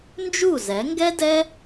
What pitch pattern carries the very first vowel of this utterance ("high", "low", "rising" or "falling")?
falling